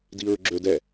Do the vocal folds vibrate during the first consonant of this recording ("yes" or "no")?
yes